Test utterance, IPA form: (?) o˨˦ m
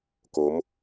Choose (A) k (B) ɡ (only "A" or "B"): A